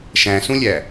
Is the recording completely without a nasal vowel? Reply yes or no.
no